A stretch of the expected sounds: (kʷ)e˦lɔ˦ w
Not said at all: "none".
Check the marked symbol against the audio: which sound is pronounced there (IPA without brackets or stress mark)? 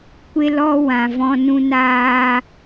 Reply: kʷ